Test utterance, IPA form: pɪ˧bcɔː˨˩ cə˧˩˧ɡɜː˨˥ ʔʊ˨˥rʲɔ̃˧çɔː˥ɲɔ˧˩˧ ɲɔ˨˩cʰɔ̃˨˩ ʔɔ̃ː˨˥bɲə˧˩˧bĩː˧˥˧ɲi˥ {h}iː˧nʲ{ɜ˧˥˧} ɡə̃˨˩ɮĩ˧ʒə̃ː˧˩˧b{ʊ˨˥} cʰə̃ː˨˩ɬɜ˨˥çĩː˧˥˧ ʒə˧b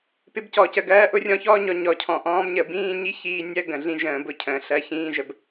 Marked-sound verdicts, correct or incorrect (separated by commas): incorrect, correct, incorrect